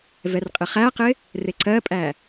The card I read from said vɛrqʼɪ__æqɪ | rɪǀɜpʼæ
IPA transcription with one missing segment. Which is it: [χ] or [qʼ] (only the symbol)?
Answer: χ